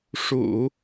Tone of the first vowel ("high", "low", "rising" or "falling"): low